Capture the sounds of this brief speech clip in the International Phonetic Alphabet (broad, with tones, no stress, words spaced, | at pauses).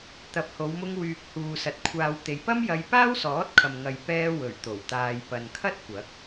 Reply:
t̪ɐ˨˥p̚ho˨˧wmʊ˧ŋ wyː˨k̚huː˨sɐ˨t̚ kʷʰaː˨wt̪e˨jpɐ˥m jɐ˧j paː˥wsɔː˨˥t̚kʰɐ˨m ŋɐ˨jpɛː˧ wɵ˨˩ɥ t̪o˨˩wt̪aː˨jpɐ˨nkʰɐ˥t̚ kʷɐ˨˥k̚